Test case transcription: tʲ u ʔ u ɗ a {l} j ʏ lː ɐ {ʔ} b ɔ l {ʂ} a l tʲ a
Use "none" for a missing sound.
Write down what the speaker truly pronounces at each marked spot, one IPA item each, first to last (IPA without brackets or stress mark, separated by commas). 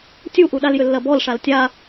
l, none, ʂ